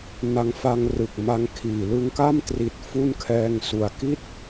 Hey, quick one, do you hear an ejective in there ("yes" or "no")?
no